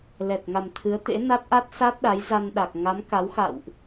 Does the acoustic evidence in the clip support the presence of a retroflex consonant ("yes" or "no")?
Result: no